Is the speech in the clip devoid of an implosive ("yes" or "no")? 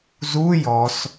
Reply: yes